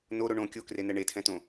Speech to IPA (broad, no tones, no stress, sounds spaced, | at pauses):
n o ɾ o ɳ õ kʲ o k r e n ɛ ɳ e tʰ ɛ̃ t õ